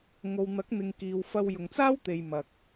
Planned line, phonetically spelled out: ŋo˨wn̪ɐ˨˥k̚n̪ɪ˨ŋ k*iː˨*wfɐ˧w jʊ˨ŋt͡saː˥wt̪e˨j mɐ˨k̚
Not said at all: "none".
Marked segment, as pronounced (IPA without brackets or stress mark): iː˨